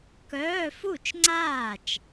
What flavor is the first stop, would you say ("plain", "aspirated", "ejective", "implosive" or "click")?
plain